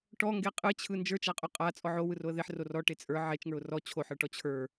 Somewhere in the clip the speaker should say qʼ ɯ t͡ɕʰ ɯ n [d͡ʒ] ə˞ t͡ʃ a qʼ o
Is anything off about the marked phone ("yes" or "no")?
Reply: no